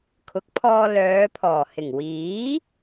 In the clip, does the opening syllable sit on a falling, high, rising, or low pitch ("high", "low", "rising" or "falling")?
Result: rising